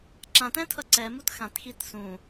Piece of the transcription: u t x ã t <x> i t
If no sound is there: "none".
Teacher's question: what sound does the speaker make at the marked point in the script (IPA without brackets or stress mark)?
x